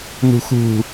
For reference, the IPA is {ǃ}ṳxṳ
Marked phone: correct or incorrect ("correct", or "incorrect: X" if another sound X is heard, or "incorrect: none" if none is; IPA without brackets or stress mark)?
incorrect: n